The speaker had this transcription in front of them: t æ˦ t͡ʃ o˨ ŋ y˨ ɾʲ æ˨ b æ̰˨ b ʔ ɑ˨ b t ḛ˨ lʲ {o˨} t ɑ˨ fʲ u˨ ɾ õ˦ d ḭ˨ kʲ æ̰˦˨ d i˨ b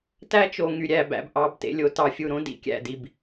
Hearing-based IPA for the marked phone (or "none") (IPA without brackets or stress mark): o˨